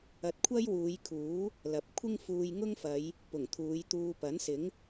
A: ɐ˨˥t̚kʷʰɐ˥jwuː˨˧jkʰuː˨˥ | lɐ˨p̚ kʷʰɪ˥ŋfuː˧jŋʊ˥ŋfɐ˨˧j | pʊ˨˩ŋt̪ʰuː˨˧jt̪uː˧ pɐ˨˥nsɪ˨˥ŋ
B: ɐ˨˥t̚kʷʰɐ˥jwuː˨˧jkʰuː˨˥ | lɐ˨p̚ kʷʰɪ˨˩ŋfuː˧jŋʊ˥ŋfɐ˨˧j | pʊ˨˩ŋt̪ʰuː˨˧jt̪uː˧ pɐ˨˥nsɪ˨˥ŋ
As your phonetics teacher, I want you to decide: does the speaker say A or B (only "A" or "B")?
A